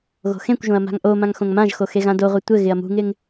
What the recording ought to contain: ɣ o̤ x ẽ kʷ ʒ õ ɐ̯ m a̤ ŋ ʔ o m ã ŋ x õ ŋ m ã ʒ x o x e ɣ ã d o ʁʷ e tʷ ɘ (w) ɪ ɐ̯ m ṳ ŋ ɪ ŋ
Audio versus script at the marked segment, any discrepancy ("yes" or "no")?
yes